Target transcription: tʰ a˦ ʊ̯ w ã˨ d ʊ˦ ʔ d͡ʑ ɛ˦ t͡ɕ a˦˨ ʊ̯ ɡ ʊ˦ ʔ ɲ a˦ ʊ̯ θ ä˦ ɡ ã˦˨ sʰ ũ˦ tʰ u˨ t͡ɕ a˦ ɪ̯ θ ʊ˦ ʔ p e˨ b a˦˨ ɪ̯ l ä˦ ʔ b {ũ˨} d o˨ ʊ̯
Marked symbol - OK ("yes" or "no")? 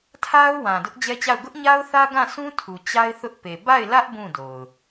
no